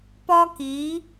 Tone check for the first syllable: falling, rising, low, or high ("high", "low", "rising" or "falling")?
high